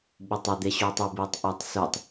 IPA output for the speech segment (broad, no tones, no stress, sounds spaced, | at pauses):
ɓ u tˤ ʌ d̪ e ɕ uː tˤ o b ɨː tˤ ʔ a tˤ s u tˤ